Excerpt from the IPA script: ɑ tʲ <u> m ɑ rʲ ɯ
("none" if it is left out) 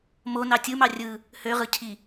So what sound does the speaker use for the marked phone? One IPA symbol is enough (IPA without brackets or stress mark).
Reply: ɯ